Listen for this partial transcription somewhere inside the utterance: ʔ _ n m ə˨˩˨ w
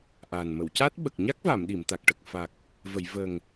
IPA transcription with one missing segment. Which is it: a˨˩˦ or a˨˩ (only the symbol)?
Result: a˨˩